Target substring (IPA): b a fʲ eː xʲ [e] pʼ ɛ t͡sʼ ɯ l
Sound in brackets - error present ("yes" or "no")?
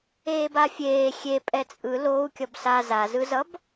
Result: no